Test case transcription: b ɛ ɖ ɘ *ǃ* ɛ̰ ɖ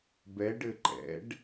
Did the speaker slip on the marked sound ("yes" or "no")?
no